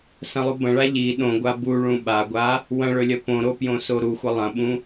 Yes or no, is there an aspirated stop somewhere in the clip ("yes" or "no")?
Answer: no